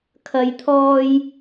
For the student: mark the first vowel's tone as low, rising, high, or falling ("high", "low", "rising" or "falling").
low